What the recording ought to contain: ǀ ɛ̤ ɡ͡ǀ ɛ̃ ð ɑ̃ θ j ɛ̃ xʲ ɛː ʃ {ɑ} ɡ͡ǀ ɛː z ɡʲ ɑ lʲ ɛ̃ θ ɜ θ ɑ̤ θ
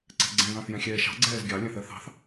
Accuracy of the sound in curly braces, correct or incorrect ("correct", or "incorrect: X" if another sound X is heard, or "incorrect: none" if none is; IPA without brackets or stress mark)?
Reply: incorrect: ɑ̤